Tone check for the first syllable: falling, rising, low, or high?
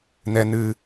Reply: low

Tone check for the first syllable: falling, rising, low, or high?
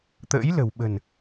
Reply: rising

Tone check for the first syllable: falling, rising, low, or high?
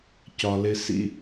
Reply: low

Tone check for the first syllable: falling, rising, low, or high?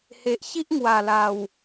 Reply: low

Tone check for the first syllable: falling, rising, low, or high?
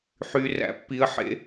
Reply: low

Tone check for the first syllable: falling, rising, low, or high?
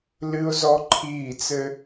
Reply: high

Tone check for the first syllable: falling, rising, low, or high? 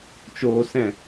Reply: low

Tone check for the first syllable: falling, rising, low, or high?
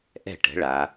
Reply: falling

